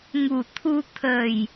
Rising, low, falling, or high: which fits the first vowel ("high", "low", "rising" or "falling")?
low